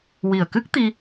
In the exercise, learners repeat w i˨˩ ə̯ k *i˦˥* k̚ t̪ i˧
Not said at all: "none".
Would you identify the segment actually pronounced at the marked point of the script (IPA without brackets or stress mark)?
ɨ˦˥